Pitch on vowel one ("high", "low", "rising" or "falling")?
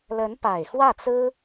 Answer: rising